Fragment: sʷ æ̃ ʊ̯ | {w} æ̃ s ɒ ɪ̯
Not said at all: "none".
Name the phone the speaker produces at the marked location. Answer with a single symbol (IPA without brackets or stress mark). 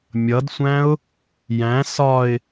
j